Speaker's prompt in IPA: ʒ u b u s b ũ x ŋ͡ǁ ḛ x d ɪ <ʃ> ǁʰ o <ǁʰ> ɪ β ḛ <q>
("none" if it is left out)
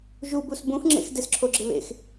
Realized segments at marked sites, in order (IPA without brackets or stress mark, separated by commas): s, ɡ͡ǁ, x